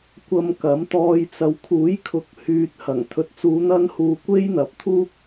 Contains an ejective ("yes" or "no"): no